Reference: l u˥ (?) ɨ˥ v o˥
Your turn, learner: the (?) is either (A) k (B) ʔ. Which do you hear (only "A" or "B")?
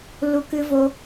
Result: A